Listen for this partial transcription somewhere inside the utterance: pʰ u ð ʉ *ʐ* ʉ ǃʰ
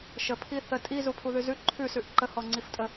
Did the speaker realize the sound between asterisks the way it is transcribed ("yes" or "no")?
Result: no